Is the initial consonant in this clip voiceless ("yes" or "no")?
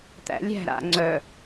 yes